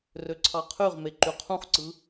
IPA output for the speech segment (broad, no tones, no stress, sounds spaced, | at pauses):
r ø ǀʰ ɑ qʰ y ʁ m e ǃ y qʰ ũ χ ǀ ɯ